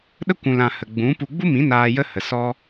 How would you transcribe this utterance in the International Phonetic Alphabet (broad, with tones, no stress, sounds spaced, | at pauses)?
ɗ ə˦ kʷ ũ˨ l ã˨ h ə˨ ɡ͡b ũ˨˦ p u˧ ɡ͡b u˦ m ĩ˨˦ n aː˧ j ə˦ h ə˨ s ɔ˦